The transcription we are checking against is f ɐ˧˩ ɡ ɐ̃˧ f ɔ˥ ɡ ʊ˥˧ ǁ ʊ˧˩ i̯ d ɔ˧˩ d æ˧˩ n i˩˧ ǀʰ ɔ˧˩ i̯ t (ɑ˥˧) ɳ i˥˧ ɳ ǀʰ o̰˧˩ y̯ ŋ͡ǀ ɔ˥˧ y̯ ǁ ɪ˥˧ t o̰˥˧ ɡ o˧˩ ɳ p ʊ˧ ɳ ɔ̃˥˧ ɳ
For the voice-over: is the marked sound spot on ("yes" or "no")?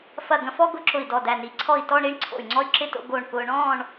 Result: no